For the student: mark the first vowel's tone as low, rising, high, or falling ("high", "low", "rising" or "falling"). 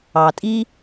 low